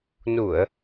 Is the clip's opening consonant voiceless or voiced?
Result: voiced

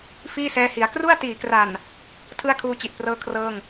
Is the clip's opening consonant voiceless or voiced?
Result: voiceless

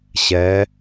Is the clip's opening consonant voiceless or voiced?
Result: voiceless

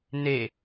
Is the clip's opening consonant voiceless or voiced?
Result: voiced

